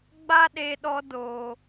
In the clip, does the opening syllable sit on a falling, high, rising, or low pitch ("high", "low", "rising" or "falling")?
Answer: high